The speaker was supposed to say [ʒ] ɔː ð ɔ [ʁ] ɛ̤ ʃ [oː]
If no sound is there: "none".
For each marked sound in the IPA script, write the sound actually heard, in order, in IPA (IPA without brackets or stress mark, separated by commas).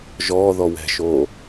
ʒ, w, oː